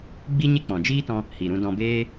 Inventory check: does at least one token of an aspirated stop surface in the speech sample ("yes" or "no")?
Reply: no